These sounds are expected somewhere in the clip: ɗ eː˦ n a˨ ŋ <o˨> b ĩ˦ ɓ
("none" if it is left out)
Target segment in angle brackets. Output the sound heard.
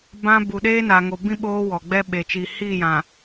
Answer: o˨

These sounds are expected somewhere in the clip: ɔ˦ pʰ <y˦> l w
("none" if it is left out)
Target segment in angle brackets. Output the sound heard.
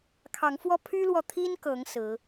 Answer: y˦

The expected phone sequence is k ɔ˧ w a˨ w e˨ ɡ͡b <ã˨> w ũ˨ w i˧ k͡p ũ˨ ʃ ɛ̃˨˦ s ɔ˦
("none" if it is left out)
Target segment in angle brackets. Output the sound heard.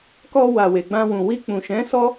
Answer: ã˧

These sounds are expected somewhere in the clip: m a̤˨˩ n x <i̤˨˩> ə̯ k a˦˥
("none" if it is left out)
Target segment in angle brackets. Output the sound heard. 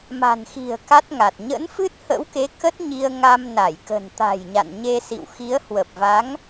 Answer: i̤˨˩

